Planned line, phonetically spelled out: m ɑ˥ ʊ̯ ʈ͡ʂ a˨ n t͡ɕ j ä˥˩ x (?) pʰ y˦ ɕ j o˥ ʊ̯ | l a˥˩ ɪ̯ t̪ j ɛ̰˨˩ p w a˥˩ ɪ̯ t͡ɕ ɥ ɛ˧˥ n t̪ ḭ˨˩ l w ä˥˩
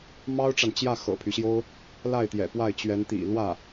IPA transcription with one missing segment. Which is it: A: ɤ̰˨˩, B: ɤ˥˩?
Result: A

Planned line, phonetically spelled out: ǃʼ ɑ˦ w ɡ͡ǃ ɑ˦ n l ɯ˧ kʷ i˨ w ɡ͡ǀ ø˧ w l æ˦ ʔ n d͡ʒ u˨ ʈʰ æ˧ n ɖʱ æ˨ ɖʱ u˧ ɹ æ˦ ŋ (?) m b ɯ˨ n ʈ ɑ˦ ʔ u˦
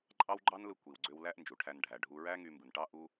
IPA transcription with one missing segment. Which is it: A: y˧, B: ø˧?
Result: A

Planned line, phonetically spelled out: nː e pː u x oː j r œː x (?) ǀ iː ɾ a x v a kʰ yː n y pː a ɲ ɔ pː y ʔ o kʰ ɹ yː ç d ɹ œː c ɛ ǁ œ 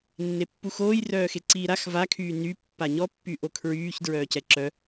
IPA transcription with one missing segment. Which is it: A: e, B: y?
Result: A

